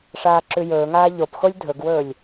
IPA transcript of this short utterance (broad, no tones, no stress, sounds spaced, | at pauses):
ʂ aː ǁ ʉ j ɵː ŋ aː ʎ o p x o lʲ dʱ ɵ ɡ w ɵː lʲ